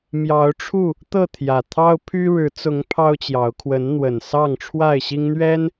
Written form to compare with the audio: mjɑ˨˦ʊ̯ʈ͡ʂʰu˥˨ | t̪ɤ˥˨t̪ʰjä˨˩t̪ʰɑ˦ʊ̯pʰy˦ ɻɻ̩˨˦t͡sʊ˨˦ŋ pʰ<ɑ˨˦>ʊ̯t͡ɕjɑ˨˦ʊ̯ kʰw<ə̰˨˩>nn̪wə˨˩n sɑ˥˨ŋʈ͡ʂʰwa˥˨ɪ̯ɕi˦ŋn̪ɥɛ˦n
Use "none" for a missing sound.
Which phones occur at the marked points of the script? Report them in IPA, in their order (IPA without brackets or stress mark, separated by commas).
ɑ˦, ə˨˦